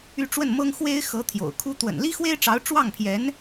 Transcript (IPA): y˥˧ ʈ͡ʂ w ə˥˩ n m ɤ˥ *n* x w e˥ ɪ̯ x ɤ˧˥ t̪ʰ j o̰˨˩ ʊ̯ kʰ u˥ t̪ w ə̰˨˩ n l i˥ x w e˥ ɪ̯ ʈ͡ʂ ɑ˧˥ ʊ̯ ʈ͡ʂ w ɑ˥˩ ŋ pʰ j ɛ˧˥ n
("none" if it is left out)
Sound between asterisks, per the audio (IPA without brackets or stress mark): ŋ